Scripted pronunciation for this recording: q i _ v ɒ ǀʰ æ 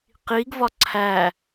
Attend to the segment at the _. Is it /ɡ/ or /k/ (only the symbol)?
ɡ